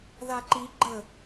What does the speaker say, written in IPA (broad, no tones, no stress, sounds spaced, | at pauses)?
ð a ǃ i ɡ͡ǃ ə